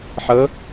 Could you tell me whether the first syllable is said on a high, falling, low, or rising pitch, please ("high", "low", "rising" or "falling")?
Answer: rising